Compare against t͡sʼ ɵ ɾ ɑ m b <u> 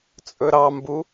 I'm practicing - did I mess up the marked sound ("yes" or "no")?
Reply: no